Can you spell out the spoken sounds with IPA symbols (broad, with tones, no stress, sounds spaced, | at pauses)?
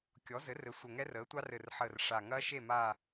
kʲ ɔ˩˥ z ɘ˩˥ r ɘ˩˥ sʷ ə˨˩ ŋ ɛ˦˥ r əː˩˥ tʷ ɑ˦˥ r ɘ˨˩ r ħ əː˨˩ r ʂ a˨˩ ŋ ɐː˦˥ ʃ e˥˨ m aː˥˨